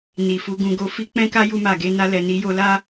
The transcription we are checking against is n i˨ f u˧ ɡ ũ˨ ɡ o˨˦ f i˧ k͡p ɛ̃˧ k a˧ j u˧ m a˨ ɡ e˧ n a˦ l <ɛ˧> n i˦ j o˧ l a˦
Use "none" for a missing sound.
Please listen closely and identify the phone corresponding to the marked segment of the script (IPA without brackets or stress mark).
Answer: ɛ˧